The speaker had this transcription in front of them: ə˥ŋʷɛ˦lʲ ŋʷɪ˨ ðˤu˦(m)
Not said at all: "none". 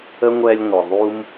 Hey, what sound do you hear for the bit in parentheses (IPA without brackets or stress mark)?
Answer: m